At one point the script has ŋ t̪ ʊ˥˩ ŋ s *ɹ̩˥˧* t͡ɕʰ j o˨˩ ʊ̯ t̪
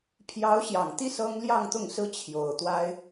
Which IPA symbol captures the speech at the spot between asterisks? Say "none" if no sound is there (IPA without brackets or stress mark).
ɹ̩˥